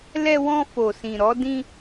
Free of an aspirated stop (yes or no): yes